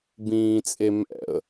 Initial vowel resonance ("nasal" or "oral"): nasal